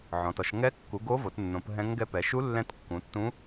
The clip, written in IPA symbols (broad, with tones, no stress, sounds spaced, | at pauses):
ʕ ɔ̃˩˧ t ɔ˩˧ ʃ ŋ ɛ˧˥ kː u˩˧ ɡ o˧˥ v o˩˧ t nː õ˩˧ p ɦ ɛ̃˧˥ ŋ ɡ ɛ˧˥ p ɛ˩˧ ʃ u˧˥ lː ɛ̃˧˥ t kː ũ˩˧ tː ũ˧˥